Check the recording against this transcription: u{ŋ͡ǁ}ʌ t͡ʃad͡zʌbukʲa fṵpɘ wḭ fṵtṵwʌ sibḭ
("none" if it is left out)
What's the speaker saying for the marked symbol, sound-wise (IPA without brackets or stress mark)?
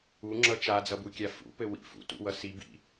ŋ͡ǁ